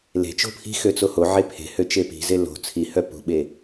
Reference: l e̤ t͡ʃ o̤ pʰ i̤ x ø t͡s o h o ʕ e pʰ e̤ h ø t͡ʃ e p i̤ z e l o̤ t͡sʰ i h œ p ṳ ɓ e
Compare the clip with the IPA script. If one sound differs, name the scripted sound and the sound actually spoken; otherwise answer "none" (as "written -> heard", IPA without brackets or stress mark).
none